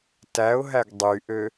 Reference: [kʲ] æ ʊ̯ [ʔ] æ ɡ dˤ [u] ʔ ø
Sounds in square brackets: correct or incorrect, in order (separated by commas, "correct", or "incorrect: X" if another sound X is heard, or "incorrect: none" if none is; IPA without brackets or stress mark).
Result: incorrect: t, incorrect: ɦ, incorrect: y